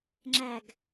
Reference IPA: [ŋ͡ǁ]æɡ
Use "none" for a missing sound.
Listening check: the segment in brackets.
ŋ͡ǁ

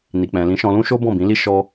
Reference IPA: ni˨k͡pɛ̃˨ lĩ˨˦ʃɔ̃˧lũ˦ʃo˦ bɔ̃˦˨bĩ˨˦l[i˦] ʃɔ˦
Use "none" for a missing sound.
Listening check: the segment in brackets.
i˦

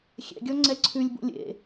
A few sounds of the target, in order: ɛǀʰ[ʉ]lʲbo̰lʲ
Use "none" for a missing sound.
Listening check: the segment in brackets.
ʉ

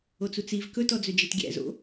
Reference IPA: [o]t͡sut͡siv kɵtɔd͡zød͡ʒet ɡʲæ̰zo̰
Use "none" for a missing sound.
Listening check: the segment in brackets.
o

